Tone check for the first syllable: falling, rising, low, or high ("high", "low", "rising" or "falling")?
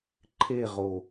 falling